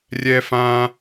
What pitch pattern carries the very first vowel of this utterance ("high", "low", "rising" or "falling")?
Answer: high